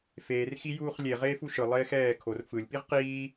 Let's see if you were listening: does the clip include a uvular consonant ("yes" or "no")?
yes